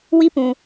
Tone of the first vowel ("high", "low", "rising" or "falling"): high